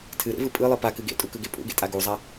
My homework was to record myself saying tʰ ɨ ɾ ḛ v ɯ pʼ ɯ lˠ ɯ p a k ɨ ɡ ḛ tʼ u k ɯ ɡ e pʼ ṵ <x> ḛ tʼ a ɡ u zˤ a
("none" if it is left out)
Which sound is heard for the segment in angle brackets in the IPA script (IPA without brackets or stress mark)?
ɡ